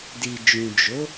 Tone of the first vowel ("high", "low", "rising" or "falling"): low